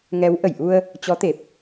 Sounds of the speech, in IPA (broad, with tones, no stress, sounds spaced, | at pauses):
ŋ ɛ˨˦ w ʔ ə˧˩ j ʔ u˧ ə̯ | t͡ɕ ɔ˨˦ t̪ e˨˩ p̚